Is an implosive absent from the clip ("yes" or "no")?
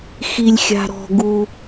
yes